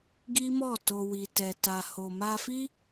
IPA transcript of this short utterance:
ɡi˦mɔ˦˨to˧ wi˨tɛ˨ ta˨ho˨ma˧fi˦

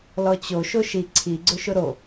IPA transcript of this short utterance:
lɔt͡ɕo ʃoʃi ǀʰiɡ͡ǀʊʃʊ ɾo

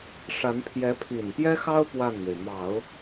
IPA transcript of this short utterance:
ʂa˧˥n pʰjɛ˧˥pʰi˨˩npjɛ˥xɑ˥ʊ̯ pwa˥˩nme˩ɪ̯ mɑ˨˩˦ʊ̯

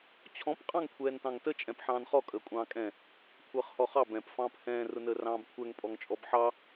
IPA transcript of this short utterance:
t͡ɕʰɔ̃p qʼɑ̃ŋkʷʰɛːntɑ̃ŋtə t͡ʃʼɛ̃pħɑ̃ːnχɔ kʼəːkʷʼɑ̃ːkʼɛ̃ | kʷʰəːχhɔχɑ bɛ̃p fɑ̃ːphɛ̃ː rʊnəːrɑ̃ːbkʷʰɛŋ pʼɔŋt͡ʃʼɔbħɑ

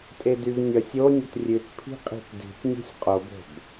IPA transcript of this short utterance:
tʼedyvnʲʌsʲ onʲət rʲʉt pʰi̤qʼi̤tdi̤t nʲe̤sʲqʼobo̤b

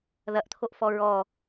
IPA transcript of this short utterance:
ðɐʔt̪ʰoʔfɔ ɹɔ

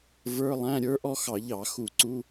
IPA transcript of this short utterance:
və˞˧˥˧lˠæ̃˧˥˧ ɾʲə˞˥ʔɔ˥xɑ˧˩˧ʎɑ˧˩˧ xu˧˩˧ǀu˧˥˧

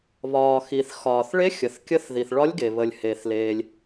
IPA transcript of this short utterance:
βɒː˩ xi˩θ xɒː˩θɭe˧˥ xʲə˩θkʲə˧˥θ ði˩θɭɒ˧˥lʲɡe˩ βə˩lʲhe˩θleː˩lʲ

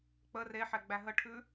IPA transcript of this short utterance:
k͡pə reħɛ ɡ͡bæɦəʈʰʉ

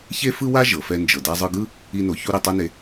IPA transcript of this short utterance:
çe˥fɯ˥wa˥ ʒɤ˩fɛ˧ nd͡ʒɤ˩da˧zˤɯ˧ɡɯ˥ | i˥no˧ çu˥ ɾe˧tˤa˥ne˧

